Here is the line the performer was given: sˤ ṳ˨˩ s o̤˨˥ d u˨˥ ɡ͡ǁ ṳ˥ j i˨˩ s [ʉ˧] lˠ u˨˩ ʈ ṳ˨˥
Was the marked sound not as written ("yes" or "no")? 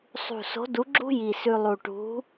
no